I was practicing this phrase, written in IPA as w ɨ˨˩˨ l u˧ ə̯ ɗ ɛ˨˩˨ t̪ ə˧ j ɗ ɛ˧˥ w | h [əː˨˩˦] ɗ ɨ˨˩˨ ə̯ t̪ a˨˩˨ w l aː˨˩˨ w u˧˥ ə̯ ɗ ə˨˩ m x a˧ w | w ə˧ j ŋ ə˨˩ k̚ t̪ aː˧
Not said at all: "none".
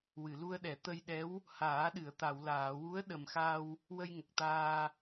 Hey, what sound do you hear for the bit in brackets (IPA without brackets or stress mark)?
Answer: aː˨˩˦